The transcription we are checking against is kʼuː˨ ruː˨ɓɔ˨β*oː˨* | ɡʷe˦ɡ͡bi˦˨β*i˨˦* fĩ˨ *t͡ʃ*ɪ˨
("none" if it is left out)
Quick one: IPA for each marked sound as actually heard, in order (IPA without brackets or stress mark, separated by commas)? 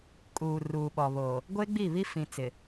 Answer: oː˨, i˦, t͡s